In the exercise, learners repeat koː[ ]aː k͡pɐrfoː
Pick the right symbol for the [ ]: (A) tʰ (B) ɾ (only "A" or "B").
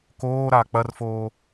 B